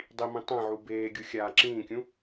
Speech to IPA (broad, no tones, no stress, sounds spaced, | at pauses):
dˤ i m ĩ tˤ ɛ̃ ʕ u b eː ɡʲ u xʲ aː ǁ ĩː kʲ ũ